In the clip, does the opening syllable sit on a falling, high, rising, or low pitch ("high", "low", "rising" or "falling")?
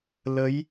rising